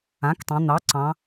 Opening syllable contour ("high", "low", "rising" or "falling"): rising